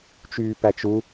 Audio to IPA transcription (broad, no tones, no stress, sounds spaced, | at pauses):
t͡ʃ yː p æ t͡ʃ u